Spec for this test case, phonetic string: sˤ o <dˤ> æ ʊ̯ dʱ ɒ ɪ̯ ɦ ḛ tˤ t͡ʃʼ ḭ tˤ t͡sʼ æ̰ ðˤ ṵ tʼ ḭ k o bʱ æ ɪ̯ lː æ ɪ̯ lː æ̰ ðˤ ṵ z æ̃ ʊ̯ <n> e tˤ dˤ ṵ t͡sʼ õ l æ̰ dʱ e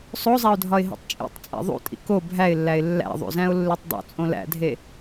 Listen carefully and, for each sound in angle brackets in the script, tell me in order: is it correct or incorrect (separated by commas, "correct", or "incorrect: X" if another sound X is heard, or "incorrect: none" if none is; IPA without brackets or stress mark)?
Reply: incorrect: zˤ, incorrect: lː